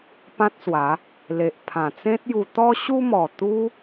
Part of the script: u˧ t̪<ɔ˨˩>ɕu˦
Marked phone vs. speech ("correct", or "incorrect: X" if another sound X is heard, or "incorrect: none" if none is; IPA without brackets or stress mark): incorrect: ɔ˦